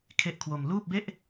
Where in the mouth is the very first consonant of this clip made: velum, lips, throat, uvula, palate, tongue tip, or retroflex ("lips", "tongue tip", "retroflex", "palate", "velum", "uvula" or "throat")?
velum